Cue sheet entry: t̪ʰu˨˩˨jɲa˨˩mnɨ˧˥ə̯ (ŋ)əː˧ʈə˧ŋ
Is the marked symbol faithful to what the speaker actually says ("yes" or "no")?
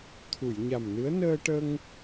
no